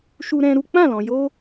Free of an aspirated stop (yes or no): yes